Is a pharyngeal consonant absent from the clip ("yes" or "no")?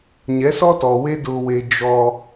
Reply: yes